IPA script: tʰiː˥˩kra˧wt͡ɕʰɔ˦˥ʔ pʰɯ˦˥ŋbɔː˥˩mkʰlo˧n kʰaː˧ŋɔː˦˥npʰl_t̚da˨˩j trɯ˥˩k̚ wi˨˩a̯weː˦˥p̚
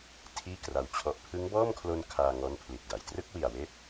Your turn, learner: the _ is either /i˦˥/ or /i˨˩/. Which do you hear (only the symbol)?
i˨˩